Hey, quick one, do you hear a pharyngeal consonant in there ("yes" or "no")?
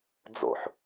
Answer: yes